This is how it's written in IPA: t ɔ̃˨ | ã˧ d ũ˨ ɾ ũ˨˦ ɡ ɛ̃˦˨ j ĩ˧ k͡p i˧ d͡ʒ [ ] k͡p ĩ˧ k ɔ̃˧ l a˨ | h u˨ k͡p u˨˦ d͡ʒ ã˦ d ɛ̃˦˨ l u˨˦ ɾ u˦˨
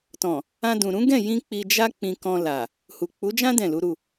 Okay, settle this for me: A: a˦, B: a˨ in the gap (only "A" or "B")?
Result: A